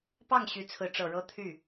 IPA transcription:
p ɑ˥˩ ŋ ɕ y˧˥ t͡sʰ ɹ̩˧˥ ʈ͡ʂ ɤ˨˩ ɻ ɤ˥ t̪ʰ y˥˩

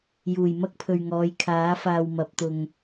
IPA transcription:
j uː˨˩ j m ɐ˥ k̚ pʰ ɵ˨ ɥ ŋ ɔː˨˧ j kʰ aː˨˥ f aː˧ w m ɐ˨˥ p̚ t̪ ʊ˧ ŋ

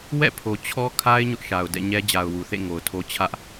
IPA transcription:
w ɛ̰˦˨ pʰ o˨ t͡ɕʰ ɔ˦ kʰ a˦ ɪ̯ ɲ ʊ˦ ʔ ʃ a˨ ʊ̯ d ɛ̰˦˨ ɲ ɛ˦ d͡ʑ a˨ ʊ̯ w u˨ θ ḛ˦˨ ŋ o˨ ʊ̯ tʰ o˦ t͡ɕʰ ä˦ ʔ

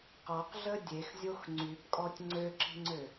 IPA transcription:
q ɔ q ɮ ə dʲ e x zʲ o x ŋ͡ǀ y b kʼ ɔ tʲ ŋ͡ǀ ø ǁ i̤ ŋ͡ǀ ø

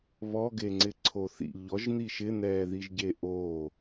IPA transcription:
β ɔ ɡ e ŋ͡ǀ ɪ ǀʰ o θ ḭ ʎ ɔ ʒ n̪ i ʃ ɪ n̪ ɛː ð i ʒ ɟ e ʔ o

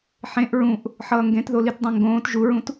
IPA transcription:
ħ ẽ ʔ ɹ ũ ʔ | ħ ʌː ŋ ɡ ẽ t ð o l i t dˤ ẽ ŋ ɡ õː t ʒ u ɹ ũ t

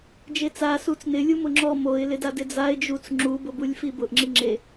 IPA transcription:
d͡ʒ e t͡s a s u t͡s n ɪ lʲ u m ʊ ŋ͡ǁ ɔ m o ɪ̯ l ɪ d a d ɪ d͡z a ɪ̯ d͡ʒ u t͡s ŋ͡ǁ u b ʊ b u lʲ f i b ʊ ʔ ŋ͡ǁ i ŋ͡ǁ e

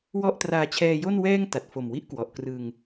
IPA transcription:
w ɔ˥˩ ʔ t r aː˧ t͡ɕʰ ɛː˧ j o˥˩ n w ɛː˥˩ ŋ t a˨˩ t̚ f o˨˩ m w i˦˥ ʔ k w ɔ˨˩ ʔ k r ɯ˧ ŋ

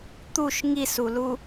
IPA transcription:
t̪ u ʃ ŋ i s u l u

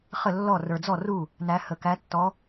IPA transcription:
χ ə˥˩ lː ɔ˥˩ r ə˞˨˩ d͡z ɔ˥˩ r u˥˩ | n æ˨˦ h ə˨˩ k æ˨˦ tː ɔ˨˦

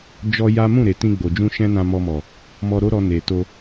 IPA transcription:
d͡ʒ ɔ˦ j a˦ m ũ˦˨ ɾ e˨ t ĩ˧ ɡ͡b o˨ d͡ʒ ũ˧ ʃ ɛ̃˦ n ã˧ m ɔ˧ m ɔ˨ | m ɔ˧ ɾ o˦ ɾ ɔ˧ n e˨ t o˧

